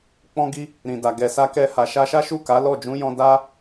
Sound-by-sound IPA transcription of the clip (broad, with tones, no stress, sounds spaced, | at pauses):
k͡p ɔ̃˦ ɡ i˦ | ɾ ĩ˨ d a˨ ɡ ɛ˨ s a˧ k ɛ˧ h a˨ ʃ a˧ ʃ a˦ ʃ u˦˨ k a˨˦ l ɔ˦˨ d͡ʒ ũ˨˦ j ɔ̃˧ d a˦